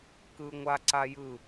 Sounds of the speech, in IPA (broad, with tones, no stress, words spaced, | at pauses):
kɯ˦ ŋʷa˦ǀa˦jɯ˦˨